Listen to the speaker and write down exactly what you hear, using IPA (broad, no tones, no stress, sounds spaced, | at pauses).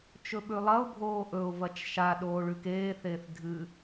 t͡ʃ ɵ ɓ ʉ lˠ ɐ ʊ̯ bʱ oː ʔ ɵ ʊ̯ v ɐ t͡ʃ ʃ a ɗ oː ɭ ʉ k eː θ eː θ dʱ ɨ